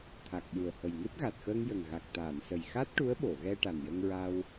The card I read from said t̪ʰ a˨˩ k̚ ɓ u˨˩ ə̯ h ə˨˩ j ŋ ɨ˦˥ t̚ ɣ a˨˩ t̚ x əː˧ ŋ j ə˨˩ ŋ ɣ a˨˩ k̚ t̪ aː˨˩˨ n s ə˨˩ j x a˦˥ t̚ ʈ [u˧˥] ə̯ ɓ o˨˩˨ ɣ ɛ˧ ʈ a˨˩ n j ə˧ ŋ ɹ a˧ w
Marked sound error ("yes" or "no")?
no